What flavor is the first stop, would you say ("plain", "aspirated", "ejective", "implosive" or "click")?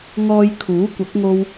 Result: aspirated